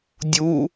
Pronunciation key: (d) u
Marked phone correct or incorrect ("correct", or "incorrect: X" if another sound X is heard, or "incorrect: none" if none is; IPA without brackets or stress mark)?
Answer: incorrect: dʲ